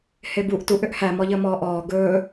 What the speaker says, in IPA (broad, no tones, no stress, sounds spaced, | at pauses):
h e b u ʔ t u ʔ ʏ ʔ h æ m ɔ ʎ əː m ɔː ʔ ɔː ɡ ɵː